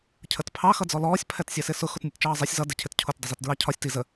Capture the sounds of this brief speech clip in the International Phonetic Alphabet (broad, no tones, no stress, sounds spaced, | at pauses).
cʰ ə t pʰ ɑ x ʌ d͡z ɔ l ɔː sʲ pʰ ɛ t sʲ ɛ s ɪ s ʊ x ʊ t nʲ ɛ t t͡ʃ ɑː zˤ ɛ sʲ z ʌ d ɪ cʰ ɪ t cʰ ʊ t dˤ ɪ z i t d ɹ ɑ cʰ ɒ sʲ t i z ə